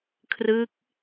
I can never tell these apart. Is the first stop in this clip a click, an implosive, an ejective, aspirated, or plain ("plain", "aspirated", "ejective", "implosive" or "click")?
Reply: aspirated